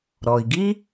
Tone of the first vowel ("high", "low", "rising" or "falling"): low